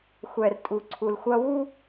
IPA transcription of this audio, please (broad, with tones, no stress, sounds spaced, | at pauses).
xʷ ɛ˨ r tʼ u˨ ǀʰ u˨ l xʷ ɐ˦ w u˦